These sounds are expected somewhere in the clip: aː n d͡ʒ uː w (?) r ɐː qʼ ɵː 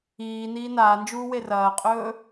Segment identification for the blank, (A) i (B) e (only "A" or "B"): B